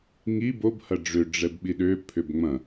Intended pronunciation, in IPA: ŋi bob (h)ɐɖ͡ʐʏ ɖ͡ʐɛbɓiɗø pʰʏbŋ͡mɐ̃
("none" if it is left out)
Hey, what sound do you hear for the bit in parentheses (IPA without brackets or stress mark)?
h